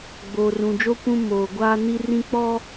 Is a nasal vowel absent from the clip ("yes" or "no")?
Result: no